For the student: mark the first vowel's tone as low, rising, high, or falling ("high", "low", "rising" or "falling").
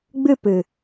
falling